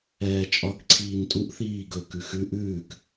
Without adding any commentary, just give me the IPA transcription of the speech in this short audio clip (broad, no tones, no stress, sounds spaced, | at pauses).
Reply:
ɛː t͡ʃʼ ɒ k ǀʰ iː n tʼ u ʔ θ iː ɡ ɵ k ʉ x ʉ ʔ ʉː k